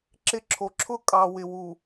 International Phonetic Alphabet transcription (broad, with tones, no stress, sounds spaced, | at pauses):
ǁ ɪ˦ ǁʰ o˨ ǁʰ ʊ˦˨ kʼ ɑ˨ w ɪ˨ w u˨